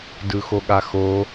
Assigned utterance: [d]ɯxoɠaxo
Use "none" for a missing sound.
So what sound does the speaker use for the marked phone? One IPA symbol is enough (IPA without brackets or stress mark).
d